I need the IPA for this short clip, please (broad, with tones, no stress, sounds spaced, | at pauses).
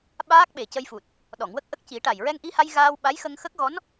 ɓ aː˦˥ k̚ ɓ e˨˩ c ə˧ j f u˨˩ t̚ | ɗ ɔ˨˩˨ ŋ w ə˦˥ k̚ ʔ ə˦˥ k̚ c i˨˩˦ ʈ a˨˩ j ɹ ɛ˧ ŋ ʔ i˧ h a˧ j ɣ aː˧ w ɓ a˧˥ j x ə˧ ŋ x ə˦˥ k̚ ɣ ɔ˧˥ n